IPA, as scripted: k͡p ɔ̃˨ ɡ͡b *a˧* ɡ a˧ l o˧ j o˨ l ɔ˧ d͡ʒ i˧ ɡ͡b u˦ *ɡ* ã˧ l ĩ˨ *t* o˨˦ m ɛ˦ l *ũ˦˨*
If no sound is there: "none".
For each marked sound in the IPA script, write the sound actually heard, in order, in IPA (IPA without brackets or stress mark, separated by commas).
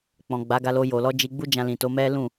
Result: a˨˦, d͡ʒ, t, ũ˦˨